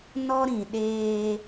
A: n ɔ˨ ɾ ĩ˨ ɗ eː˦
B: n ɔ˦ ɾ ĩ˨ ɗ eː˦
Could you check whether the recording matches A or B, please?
B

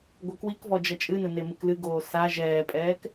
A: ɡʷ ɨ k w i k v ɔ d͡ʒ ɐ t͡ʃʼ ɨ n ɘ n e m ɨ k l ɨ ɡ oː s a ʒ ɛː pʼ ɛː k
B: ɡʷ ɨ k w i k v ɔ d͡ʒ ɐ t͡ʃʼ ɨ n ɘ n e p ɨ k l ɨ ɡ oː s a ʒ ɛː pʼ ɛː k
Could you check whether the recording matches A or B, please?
A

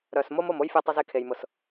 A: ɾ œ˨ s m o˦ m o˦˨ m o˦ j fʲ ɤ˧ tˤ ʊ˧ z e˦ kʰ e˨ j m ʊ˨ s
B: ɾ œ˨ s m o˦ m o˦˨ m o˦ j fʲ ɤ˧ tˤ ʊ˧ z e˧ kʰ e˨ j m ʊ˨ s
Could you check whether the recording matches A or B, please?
B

